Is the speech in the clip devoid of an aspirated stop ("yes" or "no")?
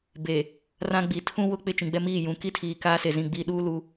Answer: no